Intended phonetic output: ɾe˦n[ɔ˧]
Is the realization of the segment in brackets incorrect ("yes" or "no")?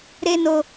yes